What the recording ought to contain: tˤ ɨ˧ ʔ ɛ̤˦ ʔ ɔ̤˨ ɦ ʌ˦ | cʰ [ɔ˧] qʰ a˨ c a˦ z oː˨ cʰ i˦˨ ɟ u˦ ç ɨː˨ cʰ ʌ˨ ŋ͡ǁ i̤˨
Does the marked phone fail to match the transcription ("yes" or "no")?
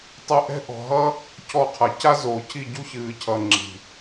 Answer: no